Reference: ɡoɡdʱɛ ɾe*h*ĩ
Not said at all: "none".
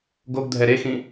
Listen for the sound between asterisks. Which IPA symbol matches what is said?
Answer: x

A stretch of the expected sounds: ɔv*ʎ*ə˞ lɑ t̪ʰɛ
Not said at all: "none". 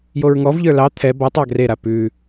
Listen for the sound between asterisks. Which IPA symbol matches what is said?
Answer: ʎ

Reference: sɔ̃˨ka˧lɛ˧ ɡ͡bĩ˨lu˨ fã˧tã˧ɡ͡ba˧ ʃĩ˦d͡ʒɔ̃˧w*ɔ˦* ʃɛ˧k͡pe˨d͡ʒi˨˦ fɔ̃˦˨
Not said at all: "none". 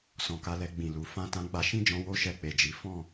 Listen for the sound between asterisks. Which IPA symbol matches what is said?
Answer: o˦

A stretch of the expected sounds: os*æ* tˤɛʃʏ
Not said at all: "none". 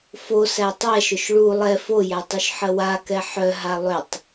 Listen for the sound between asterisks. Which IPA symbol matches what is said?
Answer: æ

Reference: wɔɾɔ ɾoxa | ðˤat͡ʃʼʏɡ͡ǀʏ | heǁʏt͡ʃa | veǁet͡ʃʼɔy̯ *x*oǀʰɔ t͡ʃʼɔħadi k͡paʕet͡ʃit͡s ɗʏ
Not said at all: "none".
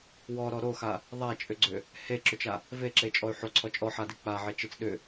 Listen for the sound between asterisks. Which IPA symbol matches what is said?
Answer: ħ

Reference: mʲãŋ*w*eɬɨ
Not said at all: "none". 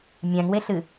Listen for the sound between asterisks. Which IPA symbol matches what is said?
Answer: w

